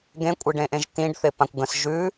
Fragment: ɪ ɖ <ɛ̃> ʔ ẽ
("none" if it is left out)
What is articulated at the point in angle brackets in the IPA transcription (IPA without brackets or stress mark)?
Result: ẽ